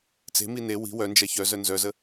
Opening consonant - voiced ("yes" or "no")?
no